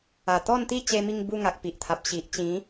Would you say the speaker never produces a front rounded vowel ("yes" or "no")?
yes